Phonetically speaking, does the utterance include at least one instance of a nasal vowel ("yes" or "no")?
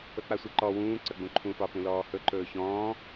yes